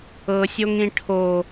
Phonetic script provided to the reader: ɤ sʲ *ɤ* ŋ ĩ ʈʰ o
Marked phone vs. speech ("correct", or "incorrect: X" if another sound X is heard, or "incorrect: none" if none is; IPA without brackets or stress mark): incorrect: o